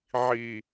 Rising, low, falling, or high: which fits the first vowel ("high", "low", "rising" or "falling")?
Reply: low